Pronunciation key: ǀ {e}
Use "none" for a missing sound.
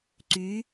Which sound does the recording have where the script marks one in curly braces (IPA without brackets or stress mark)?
y